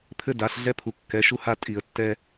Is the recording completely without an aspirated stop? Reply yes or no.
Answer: no